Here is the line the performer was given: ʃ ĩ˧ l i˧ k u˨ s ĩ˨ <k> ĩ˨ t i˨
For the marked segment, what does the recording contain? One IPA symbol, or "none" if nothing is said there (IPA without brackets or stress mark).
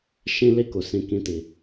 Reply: k